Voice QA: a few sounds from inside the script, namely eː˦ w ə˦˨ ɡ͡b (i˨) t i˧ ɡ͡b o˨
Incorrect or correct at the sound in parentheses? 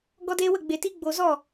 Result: incorrect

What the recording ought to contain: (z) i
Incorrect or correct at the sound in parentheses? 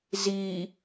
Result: correct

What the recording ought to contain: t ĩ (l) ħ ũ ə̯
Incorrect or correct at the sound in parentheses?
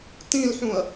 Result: correct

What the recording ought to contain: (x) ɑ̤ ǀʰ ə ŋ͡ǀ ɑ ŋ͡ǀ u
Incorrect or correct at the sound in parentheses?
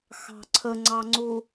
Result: correct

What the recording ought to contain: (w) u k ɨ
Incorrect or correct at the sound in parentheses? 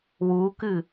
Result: correct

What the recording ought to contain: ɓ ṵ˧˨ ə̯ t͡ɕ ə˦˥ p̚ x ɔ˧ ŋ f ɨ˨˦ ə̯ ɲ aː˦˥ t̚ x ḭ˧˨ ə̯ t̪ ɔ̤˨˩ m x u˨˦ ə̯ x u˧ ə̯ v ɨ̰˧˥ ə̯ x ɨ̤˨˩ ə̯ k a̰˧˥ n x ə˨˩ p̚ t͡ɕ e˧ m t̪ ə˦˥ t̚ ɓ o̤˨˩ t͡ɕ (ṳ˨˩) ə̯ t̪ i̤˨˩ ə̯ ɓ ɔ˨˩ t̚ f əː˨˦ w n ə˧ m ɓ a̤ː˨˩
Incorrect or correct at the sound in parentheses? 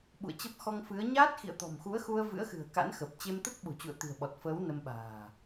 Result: incorrect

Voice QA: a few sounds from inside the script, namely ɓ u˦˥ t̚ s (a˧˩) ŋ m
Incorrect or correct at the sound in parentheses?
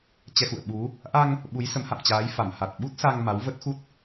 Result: incorrect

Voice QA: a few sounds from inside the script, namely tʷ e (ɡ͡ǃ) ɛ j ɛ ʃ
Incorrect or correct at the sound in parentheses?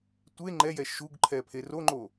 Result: incorrect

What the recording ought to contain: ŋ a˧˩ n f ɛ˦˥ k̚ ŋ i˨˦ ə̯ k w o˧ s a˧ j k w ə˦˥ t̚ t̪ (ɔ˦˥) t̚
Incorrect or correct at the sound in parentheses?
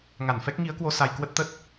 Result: incorrect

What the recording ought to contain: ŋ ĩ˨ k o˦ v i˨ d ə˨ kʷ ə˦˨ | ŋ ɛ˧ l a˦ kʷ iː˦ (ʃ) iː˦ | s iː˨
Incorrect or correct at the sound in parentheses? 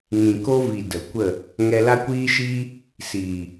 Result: correct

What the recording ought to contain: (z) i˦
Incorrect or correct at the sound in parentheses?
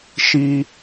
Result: incorrect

